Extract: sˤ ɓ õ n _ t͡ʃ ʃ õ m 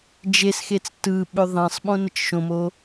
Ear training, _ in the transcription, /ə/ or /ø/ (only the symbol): ə